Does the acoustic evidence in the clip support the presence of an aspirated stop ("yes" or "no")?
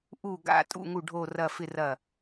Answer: no